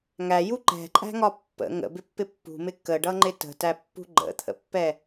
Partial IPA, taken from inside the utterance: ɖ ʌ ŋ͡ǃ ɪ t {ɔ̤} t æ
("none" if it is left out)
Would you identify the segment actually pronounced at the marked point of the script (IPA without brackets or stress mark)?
ə̤